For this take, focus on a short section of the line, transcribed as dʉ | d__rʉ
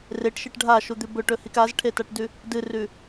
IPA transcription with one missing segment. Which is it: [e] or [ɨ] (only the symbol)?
ɨ